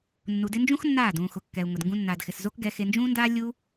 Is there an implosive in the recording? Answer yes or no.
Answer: no